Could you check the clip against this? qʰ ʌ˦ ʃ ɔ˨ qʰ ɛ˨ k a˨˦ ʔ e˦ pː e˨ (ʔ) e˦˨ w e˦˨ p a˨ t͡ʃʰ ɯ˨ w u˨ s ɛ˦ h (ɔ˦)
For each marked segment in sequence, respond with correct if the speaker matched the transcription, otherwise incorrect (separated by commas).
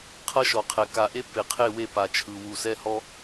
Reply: incorrect, correct